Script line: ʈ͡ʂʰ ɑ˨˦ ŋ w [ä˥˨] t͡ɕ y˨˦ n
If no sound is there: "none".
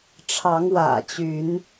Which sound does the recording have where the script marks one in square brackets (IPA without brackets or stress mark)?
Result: ä̰˨˩